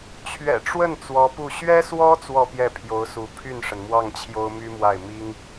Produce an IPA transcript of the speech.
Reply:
t͡ɕʰ ɥ ɛ̰˨˩ ʈ͡ʂ w ə˥˩ n t͡s w ɔ˧˥ p u˥˩ ɕ ɥ ɛ˥ s w ɔ˥ t͡s w ɔ˥˧ p j ɛ˥˩ pʰ j o˧˥ ʊ̯ s u˧˥ pʰ y˥˩ n ʂ ə˩ n m w ɑ˥˩ ŋ t͡ɕʰ j o˥ ʊ̯ m y˥ m w a˥˩ ɪ̯ m i˥ ŋ

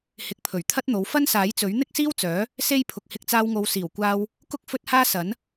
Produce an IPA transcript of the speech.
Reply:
h ɪ˨˥ k̚ pʰ ɵ˨˩ ɥ t̪ʰ ɐ˥ t̚ n̪ o˨˥ w f ɐ˥ n s aː˨˥ j t͡s ɵ˨˥ ɥ n̪ ɪ˥ k̚ s iː˥ w t͡s œː˨˥ | s e˥ j pʰ ʊ˨ k̚ h ɪ˧ k̚ t͡s aː˧ w ŋ o˨˧ w s iː˨˩ w kʷ aː˧ w | k ʊ˥ k̚ f ɵ˥ t̚ h aː˥ s ɐ˨˥ n

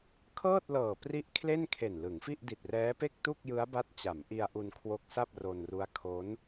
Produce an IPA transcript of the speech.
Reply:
kʰ ɤː˥˩ t̚ l ɤː˨˩ p r i˦˥ ʔ kʰ l e˥˩ n kʰ e˨˩ n l ɯ˩˦ ŋ f i˥˩ ʔ d i˨˩ t̚ r ɛː˦˥ p e˥˩ k̚ t u˥˩ k̚ j ɯ˦˥ a̯ b a˦˥ t̚ t͡ɕ a˩˦ m ʔ i˧ a̯ ʔ u˧ n kʰ w o˦˥ k̚ s a˥˩ p̚ r o˧ n r u˦˥ a̯ kʰ o˦˥ n

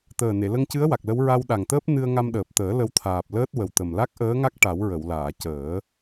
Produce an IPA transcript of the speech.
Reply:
t̪ əː˨˩ n e˨˩˨ l ə˧ ŋ c ɨ˧˥ ə̯ w a˨˩ k̚ l ə˧˥ w ɹ a˧ w ɗ a˨˩ ŋ t̪ əː˦˥ p̚ n ɨ˧ ə̯ ŋ a˧ m ɗ əː˨˩ p̚ t̪ əː˨˩˦ l ə˧˥ w t̪ʰ aː˨˩ p̚ l əː˦˥ t̚ w ə˨˩ w t̪ ə˨˩ m l a˦˥ k̚ ʔ əː˧˥ ŋ a˦˥ k̚ ʈ a˨˩˦ w ɹ ə˨˩˨ w l aː˨˩˨ c əː˨˩˦

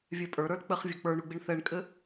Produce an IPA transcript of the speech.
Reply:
vʲ ɛ pʼ ə˞ ɾ ə˞ l k͡p ɘ χ vʲ ə˞ k͡p ə˞ ɳ u ɡ͡b i ɳ θ ɛ ɳ kʼ ɘ

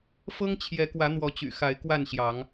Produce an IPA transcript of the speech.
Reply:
f ɤ˦ ŋ t͡ɕʰ j ɛ˨˦ k w ä˨˦ n̪ w ɔ˨˦ t͡ɕ y̰˨˩ x a˨˦ ɪ̯ k w a˥˨ n ɕ j ɑ˨˦ ŋ

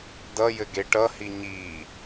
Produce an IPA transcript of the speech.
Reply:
d ʌ j ɘ ɡ e ʈ ʌ h i ɲ i

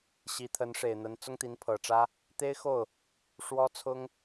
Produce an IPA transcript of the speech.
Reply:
ɕ i˧˥ t̪ʰ ə˧˥ n ʂ e˨˩ ɪ̯ n̪ ə˧˥ n t͡s ʊ˥ ŋ t̪ i˧˥ n pʰ ɤ˨˩ ʈ͡ʂ ä˥ | t̪ e˥ ɪ̯ x o˥˩ ʊ̯ | ʂ w ɔ˥ t͡sʰ ʊ˥ ŋ

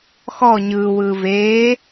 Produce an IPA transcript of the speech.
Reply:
x ɔ ɲ ɯː w ɯː v eː

